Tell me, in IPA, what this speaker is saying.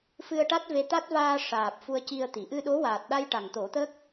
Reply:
f ɨ˧ ə̯ ʈ a˦˥ t̚ v e˧ t̪ a˦˥ t̚ v aː˧ ʂ aː˨˩ p̚ f u˧ ə̯ c i˧ ə̯ t̪ i˨˩˨ ʔ ɨ˧ ɗ o˧˥ w aː˨˩ t̚ ɗ a˧ j ʈ a˨˩ ŋ t̪ o˨˩˦ t̪ ə˦˥ k̚

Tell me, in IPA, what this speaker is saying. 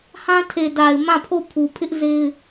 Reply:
h ã˦ tʰ e˨ d a˨ ɪ̯ m ã˦˨ pʰ o˦˨ pʰ u˨ pʰ ɪ˦ ʔ z e˦ ɪ̯

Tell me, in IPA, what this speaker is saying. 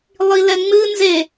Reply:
lˠ i l ɛ ŋ͡m ɨ n z e

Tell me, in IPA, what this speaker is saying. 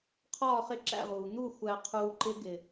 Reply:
qʰ ɒː˥˨ χ ɪ˦˥ ǁ æ̰˥˨ ʁ uː˩ n̪ u˥˨ xʷ æ˧ qʰ uː˧ ǃ ɪ˦˥ ɡ ɪ˩

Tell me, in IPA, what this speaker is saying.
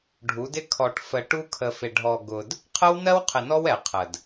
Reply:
ɖʱ u˨˦ d ɪ˦ kʰ ɔ˨ ʈ f ə˨ ʈ u˦ kʰ ə˨ f ɪ˨ ɖʱ ɔ˨ ɡ ʊ˨ d | qʰ ə˦ w n ɜ˦ w qʰ ɪ˨ n ɔ˦ w ɛ˨ qʰ ə˨ d

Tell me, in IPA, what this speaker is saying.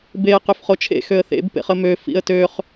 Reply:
b e ə̯ q ø f χ o t͡ʃʰ ḛ x ø ə̯ θ ḛ b p ḛ χ ə m ø f ḭ ə̯ t ø χ

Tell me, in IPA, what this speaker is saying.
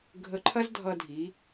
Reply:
ɡʱ ə˧ ǃʰ ɐ˥ z dʱ ʌ˧ dʱ i˩˧

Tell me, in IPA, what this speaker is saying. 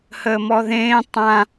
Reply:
h əː m ɔ ð ẽː tˤ ã

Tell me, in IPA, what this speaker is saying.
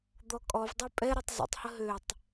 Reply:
d̪ ɔ kʼ ɔ v dˤ ɛ pʼ ɛ ɾ u tˤ z ə̰ tˤ h ə ɦ ø tˤ

